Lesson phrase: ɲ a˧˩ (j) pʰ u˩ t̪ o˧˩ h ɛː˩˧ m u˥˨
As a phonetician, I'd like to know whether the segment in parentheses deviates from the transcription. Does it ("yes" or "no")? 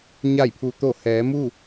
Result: no